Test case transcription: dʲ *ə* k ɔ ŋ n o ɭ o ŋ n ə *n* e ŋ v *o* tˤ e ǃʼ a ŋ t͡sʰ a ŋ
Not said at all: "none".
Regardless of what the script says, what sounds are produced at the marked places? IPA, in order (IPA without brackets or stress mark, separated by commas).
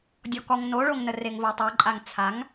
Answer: ɔ, r, o